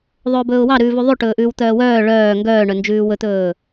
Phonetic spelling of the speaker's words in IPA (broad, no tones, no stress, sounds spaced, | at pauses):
ðˤ ɵː b ɵː ʊ̯ w ɑ ɾ ʉː v ʉ ðˤ ʉ ʈ ɵː ʔ ʉː w t̪ œː w œː ɭ œː ŋ ɡ œː ɳ œ n d͡ʒ ʉː w ɵ t̪ ɵː